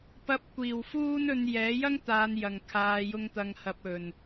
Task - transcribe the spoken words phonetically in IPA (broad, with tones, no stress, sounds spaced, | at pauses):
p ɐ˧ p̚ kʷ iː˨˩ w f uː˥ n ɵ˧ n j ɛː˨˥ j ɐ˥ ŋ t̪ aː˨ n j ɐ˨˩ ŋ kʰ aː˨ j ʊ˧ ŋ t̪ ɐ˨ ŋ h ɐ˨ p̚ ɵ˨˩ n